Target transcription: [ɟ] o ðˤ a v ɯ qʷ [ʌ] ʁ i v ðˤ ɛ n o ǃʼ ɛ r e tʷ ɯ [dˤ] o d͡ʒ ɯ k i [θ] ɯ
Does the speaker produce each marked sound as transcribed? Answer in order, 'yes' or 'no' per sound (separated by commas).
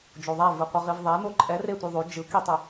no, yes, no, no